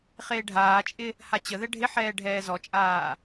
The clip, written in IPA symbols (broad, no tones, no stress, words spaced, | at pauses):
χeːɖʱaːt͡ʃʼɪ | hat͡ɕəðɛ ɖʱɪħɛː ɖʱɛːzɔt͡ʃʼaː